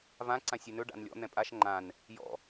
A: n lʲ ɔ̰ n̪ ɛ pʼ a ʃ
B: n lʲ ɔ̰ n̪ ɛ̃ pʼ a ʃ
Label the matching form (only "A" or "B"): B